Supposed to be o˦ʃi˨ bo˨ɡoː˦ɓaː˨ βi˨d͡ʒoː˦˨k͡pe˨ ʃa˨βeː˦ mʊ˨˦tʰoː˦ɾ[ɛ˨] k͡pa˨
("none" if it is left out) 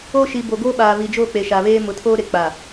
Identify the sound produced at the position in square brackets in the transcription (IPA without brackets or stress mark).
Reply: e˨